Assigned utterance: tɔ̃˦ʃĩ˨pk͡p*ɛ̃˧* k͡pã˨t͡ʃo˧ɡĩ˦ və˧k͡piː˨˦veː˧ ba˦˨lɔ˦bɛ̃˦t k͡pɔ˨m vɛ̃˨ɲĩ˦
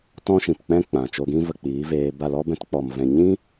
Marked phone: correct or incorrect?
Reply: incorrect